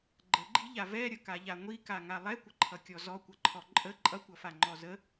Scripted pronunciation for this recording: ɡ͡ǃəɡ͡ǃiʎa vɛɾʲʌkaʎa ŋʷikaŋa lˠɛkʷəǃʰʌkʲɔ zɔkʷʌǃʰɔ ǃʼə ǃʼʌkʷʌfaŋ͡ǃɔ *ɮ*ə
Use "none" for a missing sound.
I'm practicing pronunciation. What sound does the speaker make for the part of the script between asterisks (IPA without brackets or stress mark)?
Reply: z